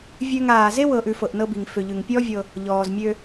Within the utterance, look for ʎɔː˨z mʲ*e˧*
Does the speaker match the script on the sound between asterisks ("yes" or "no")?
no